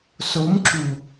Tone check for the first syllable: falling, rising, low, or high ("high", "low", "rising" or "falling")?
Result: rising